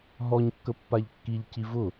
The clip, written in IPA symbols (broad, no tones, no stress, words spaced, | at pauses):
ɦɔɲkːə pːaʎkːiʎci vʊ